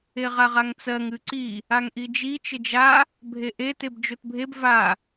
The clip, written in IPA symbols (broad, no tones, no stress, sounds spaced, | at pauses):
e ʁ a ʁ a ŋ t͡s ɜ ŋ ɨ ǀ i | a ŋ ʔ i d͡ʒ i t͡ʃ ɘ d͡ʒ a | bʱ e ʔ e t e b d͡ʒ o t bʱ e b v a